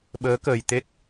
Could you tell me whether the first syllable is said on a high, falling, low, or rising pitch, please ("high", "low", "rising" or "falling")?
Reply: rising